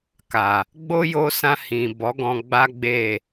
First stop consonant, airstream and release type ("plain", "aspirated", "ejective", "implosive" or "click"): plain